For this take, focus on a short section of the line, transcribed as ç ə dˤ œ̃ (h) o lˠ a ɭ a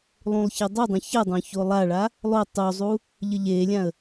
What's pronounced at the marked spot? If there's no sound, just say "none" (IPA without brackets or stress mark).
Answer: ç